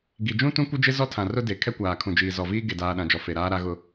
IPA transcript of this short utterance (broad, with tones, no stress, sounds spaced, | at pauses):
ɡ i˨ d͡ʒ ũ˦ t ũ˦ kʷ ɪ˦ d͡ʒ ɪ˦ z ɔ˦ tʰ ã˨ r ʊ˦ d e˨ kʰ ɛ˦ kʷ aː˨ kʰ ũ˨ d͡ʒ iː˨ z ɔ˨ v iː˦ ɡ e˨ d aː˨ ɗ ã˨ d͡ʒ ɔ˨ f e˨ ɾ aː˦ ɾ a˦ ɣ ʊ˦